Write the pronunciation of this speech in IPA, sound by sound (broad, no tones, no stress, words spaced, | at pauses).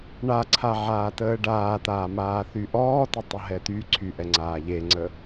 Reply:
ɳaǀʰa ʕaːtəːɖaːt̪aː maːθyʔɔːtə tˤəɦɛt̪yǀʰy ʔɛŋ͡ǀaːʎeŋ͡ǀə